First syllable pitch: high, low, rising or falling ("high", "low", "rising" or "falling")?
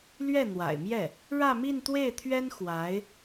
falling